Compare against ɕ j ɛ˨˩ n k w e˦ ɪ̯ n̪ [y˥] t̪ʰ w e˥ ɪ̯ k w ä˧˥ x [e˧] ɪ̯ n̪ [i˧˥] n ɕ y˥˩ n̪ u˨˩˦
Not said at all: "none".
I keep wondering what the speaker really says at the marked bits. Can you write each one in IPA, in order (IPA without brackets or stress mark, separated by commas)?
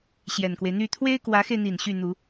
y˥˩, e˧, i˨˩